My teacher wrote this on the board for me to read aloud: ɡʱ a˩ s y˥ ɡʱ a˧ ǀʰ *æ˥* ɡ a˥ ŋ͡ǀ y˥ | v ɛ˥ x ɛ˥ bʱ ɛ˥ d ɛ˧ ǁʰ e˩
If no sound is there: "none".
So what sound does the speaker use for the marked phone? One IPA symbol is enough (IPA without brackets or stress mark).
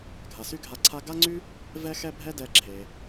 a˥